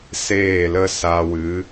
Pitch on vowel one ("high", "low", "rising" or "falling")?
falling